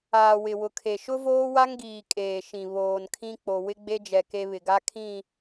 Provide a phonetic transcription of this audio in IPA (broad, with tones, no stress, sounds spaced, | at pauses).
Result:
aː˨ w ɪ˨ w ʊ˨ kʰ e˨ ʃ ʊ˦ v oː˦ w a˦ ŋ ɡ iː˨ kʼ eː˨ ʃ ĩ˨ β oː˨ n kʰ ĩ˦ k͡p o˨ w ɪ˦ ɡ͡b e˦ d͡ʒ ɛ˨ k e˦ β ɪ˨ ɡ a˦ kʰ ĩ˦˨